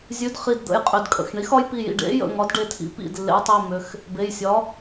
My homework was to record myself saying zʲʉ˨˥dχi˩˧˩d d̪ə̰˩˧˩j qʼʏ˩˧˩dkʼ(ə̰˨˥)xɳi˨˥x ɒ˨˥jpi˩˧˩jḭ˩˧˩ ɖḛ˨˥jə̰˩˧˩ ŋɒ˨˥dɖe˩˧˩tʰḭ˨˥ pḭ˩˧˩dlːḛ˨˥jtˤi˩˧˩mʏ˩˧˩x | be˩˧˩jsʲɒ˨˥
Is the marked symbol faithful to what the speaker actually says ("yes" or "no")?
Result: no